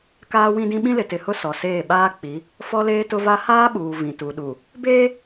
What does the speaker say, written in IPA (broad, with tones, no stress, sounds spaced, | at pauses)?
k aː˦ w ĩ˦ d ĩ˦ ɓ ĩ˦ l ɪ˨ t ɪ˨ h ʊ˦ s ɔ˨ s eː˦˨ ɓ aː˦ k͡p i˨˦ | f ɔ˦ l eː˦ t ʊ˦ v a˦ h aː˦ ɓ uː˨ v ĩ˨ t u˨ ɗ u˨ | b eː˦